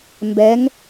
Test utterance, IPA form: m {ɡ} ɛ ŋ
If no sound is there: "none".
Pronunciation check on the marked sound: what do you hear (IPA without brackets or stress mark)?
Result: b